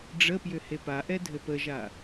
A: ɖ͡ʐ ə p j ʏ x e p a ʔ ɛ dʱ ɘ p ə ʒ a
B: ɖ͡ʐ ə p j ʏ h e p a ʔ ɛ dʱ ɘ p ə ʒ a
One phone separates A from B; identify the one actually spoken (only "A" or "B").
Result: B